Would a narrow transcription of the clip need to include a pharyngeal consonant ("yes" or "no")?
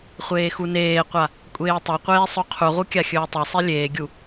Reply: no